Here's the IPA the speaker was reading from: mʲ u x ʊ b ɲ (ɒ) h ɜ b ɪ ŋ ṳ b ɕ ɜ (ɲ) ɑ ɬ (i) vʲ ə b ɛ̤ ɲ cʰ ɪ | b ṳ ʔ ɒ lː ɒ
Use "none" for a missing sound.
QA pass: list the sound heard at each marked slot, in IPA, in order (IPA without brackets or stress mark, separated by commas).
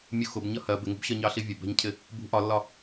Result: ʌ, ɲ, i